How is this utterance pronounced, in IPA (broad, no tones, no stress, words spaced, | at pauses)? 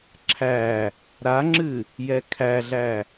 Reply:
ǁʰæ | ɾaŋ͡ǁɨ | jɛkʰæɮæ